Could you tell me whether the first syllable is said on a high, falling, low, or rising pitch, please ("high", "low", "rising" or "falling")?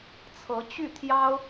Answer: rising